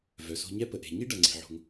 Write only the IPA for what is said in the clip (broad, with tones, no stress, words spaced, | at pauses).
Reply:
vœ˩so̤˧ɲɛ˥ pə˩ʔe̤˩ ɲi˥ ɖɐ˩ŋ͡ǀe̤˩ʕo̤˩ŋ